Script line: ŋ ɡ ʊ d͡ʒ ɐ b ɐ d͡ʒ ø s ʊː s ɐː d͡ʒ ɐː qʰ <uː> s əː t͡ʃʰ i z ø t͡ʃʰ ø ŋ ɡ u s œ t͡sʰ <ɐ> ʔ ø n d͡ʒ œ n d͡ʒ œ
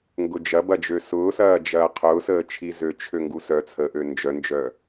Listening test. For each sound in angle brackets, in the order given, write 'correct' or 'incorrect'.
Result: incorrect: ʊː, incorrect: ə

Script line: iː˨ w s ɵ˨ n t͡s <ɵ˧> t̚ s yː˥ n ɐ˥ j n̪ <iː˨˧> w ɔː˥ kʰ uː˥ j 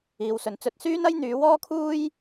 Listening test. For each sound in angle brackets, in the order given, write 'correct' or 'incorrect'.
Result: correct, incorrect: yː˨˧

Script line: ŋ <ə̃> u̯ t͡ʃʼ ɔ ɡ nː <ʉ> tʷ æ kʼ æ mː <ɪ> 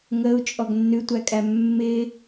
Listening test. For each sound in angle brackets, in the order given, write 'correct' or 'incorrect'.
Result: incorrect: ə, correct, correct

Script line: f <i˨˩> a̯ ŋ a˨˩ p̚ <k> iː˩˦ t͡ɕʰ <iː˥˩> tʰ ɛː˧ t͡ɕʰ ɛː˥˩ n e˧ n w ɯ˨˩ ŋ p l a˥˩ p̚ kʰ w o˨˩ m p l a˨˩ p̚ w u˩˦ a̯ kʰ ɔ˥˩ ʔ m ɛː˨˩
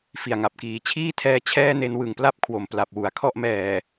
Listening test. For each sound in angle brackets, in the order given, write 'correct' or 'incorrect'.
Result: correct, correct, correct

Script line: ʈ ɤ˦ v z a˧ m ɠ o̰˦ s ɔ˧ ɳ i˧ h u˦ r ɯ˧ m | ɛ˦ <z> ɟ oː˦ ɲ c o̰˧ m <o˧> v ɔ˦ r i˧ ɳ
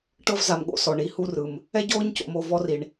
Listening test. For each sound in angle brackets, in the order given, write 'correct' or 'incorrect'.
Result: incorrect: none, correct

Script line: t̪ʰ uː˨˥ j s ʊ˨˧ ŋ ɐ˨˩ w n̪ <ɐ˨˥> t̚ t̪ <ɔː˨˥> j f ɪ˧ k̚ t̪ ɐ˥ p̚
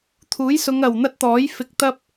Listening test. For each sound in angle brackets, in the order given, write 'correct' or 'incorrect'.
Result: incorrect: ɐ˥, correct

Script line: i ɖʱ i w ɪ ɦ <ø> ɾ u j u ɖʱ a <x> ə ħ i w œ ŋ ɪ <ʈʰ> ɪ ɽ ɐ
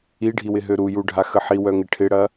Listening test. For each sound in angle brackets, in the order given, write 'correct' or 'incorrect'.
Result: correct, correct, correct

